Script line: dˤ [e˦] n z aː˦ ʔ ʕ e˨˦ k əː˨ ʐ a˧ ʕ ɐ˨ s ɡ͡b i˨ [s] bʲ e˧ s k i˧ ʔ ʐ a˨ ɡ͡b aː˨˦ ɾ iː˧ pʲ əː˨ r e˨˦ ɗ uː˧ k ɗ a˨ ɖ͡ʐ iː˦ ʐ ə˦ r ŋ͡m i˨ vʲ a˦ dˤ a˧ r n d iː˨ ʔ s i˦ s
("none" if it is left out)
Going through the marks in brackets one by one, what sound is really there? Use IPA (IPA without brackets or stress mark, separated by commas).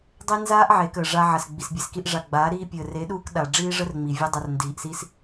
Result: e˦, s